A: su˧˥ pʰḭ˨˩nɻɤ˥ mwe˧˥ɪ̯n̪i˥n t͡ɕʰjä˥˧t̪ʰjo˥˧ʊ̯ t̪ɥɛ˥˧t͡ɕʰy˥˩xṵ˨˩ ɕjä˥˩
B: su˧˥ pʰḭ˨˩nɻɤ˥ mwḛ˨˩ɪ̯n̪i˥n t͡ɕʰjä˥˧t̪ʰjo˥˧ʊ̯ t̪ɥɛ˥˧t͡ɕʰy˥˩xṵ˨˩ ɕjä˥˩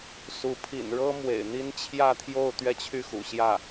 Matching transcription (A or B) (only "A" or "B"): B